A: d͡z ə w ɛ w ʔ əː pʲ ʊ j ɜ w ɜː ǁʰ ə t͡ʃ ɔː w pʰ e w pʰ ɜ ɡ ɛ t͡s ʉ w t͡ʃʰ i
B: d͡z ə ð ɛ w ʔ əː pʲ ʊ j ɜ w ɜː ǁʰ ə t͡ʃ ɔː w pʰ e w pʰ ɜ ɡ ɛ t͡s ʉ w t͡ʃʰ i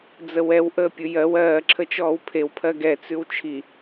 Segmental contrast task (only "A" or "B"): A